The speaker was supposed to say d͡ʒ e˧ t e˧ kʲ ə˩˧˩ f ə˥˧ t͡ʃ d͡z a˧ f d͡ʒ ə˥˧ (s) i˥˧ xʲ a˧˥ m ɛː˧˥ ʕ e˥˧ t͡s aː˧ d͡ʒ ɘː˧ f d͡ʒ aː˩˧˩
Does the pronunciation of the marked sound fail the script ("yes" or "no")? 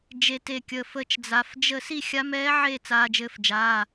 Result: no